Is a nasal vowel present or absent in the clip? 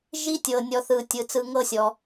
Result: absent